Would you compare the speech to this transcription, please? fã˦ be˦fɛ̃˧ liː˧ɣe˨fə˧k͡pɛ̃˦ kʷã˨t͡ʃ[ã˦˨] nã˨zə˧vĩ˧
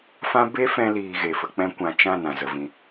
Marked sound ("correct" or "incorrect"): correct